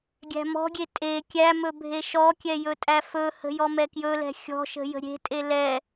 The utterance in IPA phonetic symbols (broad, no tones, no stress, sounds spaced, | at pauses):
ɡʲ æ̤ m ɔ̤ ɡʲ e tʼ e kʲ æ m ɵ bʱ e ʃ ɔ kʲ ɛ j ɵ tʼ æ f ɵ h ə̤ j ɔ m ɛ k j ɵ l ɛ̤ xʲ ɔ̤ ʃ ə̤ j ə̤ ɾʲ e̤ tʼ e l ɛ